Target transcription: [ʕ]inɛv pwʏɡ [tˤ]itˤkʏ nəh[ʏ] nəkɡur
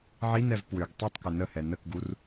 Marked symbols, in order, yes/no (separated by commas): yes, yes, no